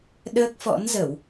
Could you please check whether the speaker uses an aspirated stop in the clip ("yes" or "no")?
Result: no